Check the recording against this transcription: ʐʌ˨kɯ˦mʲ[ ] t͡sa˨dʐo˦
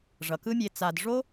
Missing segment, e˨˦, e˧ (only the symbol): e˧